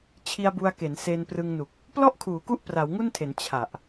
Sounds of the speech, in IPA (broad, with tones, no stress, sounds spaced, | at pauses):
t͡ɕʰ i˧ a̯ b u˧ a̯ k e˩˦ n s e˧ n p r ɯ˧ ŋ n u˨˩ k̚ | p l ɔ˥˩ ʔ kʰ uː˩˦ k u˦˥ ʔ p r a˩˦ w ŋ u˥˩ n tʰ e˩˦ n t͡ɕʰ a˨˩ ʔ